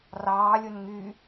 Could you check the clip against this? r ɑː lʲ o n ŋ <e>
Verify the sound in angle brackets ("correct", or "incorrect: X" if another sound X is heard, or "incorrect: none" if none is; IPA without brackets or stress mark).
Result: incorrect: y